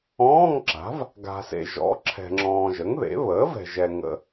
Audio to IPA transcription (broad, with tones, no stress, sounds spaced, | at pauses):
ɔ̃ː˧˥˧ ŋ ǁ a̤˩˥ v | ɡ a̤˨ s ḛ˨ ʒ ɔ̰˩˥ ǁʰ ɛ̤˨ ŋ͡ǁ ɔ̃ː˨ ʒ ə˩˥ ŋ ð ḛ˩˥ β əː˩˥ v ɛ̤˨ ʒ ɛ˨ ŋ ə̰˨